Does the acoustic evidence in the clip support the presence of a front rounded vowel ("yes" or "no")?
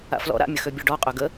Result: yes